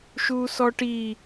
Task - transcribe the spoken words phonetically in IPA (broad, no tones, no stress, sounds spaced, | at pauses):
ʃ u s ɔ ʈ i